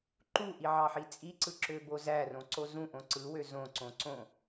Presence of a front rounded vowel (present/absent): present